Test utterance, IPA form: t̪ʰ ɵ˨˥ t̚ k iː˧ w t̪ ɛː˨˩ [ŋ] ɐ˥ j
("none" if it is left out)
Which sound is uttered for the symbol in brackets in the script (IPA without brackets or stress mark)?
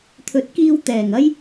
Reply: ŋ